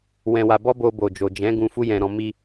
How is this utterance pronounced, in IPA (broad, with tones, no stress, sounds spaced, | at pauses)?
w ɛ̃˧ w a˧ b ɔ˦ b o˧ b o˨ d͡ʒ o˨ d͡ʒ ɛ̃˨˦ ɡ ũ˧ f u˦ j ɛ̃˧ ɾ ɔ̃˧ m i˧